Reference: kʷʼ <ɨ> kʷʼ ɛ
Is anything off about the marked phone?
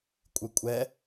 no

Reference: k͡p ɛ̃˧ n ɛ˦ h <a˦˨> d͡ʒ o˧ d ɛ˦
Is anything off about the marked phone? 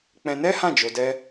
yes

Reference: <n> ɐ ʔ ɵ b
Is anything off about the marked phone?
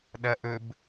yes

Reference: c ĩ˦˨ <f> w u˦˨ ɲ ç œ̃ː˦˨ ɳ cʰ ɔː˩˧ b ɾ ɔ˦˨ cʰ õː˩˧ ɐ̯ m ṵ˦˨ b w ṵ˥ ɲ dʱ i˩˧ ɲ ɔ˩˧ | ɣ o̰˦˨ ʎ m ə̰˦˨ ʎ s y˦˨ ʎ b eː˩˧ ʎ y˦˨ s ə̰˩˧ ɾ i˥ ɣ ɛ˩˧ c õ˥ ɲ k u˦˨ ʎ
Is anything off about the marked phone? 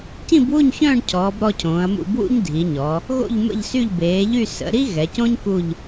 yes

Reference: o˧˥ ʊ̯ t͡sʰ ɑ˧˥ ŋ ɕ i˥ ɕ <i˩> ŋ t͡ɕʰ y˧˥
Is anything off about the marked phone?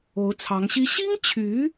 yes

